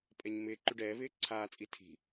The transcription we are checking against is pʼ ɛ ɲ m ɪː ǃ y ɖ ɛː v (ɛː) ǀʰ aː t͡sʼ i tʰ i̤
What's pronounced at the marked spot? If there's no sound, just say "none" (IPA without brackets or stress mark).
ɪː